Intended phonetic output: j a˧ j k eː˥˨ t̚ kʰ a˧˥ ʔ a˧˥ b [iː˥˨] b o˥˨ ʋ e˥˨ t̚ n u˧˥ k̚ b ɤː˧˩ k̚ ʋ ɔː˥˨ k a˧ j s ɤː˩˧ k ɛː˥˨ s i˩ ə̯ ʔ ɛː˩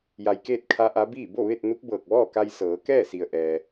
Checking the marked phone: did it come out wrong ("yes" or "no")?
no